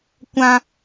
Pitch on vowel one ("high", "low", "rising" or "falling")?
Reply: high